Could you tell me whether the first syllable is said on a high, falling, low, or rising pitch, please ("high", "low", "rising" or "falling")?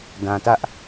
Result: low